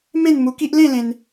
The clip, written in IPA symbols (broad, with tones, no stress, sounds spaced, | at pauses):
m ẽ˥˧ n m u˧ k i˦ ʔ l ẽ˥˧ l ẽ˧ n